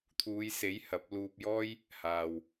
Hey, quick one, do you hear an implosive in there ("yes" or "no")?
no